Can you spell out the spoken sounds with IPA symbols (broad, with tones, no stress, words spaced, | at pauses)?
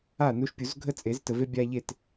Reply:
a˥˩nu˦ʃpʲu˨˩˦z ɡʱə˦ t͡sʼe˨˩˦ztə˨ve˦ bʲa˦ʎe˥˩t